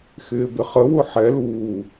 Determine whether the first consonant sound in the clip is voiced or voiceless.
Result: voiceless